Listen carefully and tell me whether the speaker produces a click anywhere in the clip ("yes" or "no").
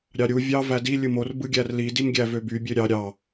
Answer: no